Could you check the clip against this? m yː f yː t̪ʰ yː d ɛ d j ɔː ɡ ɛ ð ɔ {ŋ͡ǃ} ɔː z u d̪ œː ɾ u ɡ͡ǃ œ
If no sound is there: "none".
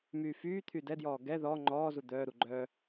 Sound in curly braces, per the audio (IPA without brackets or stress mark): ŋ͡ǃ